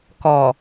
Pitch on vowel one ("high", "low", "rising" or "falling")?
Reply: low